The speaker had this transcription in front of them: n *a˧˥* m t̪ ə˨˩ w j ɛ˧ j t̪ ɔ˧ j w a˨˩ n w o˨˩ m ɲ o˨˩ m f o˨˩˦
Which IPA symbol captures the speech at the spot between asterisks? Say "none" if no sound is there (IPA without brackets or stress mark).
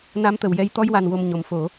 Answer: a˧˥